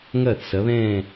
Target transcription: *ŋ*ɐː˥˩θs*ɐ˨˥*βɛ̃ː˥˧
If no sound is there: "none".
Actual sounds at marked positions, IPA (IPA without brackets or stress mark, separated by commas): ŋ, ɐ˨˥